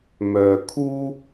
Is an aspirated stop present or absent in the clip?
present